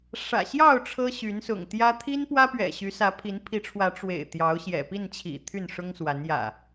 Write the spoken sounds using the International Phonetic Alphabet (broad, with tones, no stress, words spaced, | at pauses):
ʂä̰˨˩ɕjɑ˥˨ʊ̯ ʈ͡ʂʰɤ˦ɕy˨˦nsʊ̰˨˩ŋt̪jä˦ t̪ʰi˦n pwä˦pɥɛ̰˨˩ɕy˨˦ sä˨˦pʰi˨˦npʰi˨˦ʈ͡ʂʰwä˨˦ ʈ͡ʂwḛ˨˩ɪ̯ t̪jɑ˨˦ʊ̯ɕjɛ̰˨˩pi˥˨nt͡ɕʰḭ˨˩ t̪ʰy˥˨nʂʊ˦ŋswa˨˦n jä̰˨˩